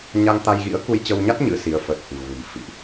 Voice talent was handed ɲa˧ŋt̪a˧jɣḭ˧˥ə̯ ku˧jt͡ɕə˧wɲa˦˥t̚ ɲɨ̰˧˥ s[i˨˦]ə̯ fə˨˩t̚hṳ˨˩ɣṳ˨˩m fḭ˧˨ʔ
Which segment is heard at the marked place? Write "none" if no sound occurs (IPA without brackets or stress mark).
i˨˦